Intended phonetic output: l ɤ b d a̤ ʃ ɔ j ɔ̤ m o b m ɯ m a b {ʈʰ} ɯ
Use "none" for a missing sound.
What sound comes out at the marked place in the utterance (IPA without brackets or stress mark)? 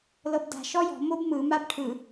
ʈʰ